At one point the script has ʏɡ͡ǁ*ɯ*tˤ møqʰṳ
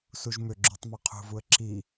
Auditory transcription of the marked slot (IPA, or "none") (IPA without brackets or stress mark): u